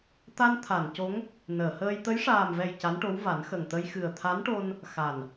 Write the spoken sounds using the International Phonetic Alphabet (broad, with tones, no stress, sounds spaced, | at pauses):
t̪ a˧ n t̪ʰ a˨˩˨ n c o˧˥ ŋ | n əː˨˩˨ h əː˧ j t̪ ə˧˥ j ʂ aː˨˩ m v ɛ˨˩ j c a˧˥ n ʈ o˧˥ w v a˨˩˦ n x ə˨˩ ŋ t̪ ə˧ j x ɨ˨˩ ə̯ t̪ʰ a˧˥ n ʈ o˧ n | x a˨˩ n